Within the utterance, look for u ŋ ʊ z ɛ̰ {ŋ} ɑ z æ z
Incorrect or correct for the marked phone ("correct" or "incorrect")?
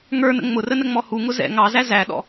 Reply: correct